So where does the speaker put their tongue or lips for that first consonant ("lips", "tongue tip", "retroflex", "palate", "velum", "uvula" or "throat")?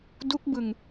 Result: tongue tip